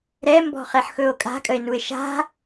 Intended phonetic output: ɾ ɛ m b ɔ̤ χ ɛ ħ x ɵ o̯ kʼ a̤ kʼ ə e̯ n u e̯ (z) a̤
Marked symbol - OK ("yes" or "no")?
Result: no